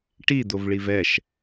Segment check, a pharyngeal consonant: absent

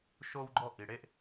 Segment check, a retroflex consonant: present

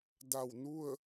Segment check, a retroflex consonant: absent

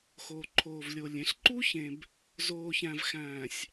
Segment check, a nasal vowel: present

